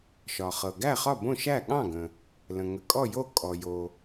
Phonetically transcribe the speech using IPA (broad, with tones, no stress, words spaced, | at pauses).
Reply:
ʃɒ˩χɤ˩ ɡæ˥˩χɒ˥˩bõ˥˩ ʃæ˥˩ɠɑ̃˥˩ɡə̃˩ | lə̃˩ ŋə˩kʼɔ˥˩jo˥˩ kʼɔ˩jo˩